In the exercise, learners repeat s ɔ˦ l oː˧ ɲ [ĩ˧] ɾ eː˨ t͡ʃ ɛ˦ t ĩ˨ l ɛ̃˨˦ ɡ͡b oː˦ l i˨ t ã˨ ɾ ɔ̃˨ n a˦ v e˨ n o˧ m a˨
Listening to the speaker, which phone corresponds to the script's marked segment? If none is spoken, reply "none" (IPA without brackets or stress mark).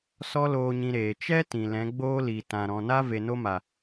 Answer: ĩ˧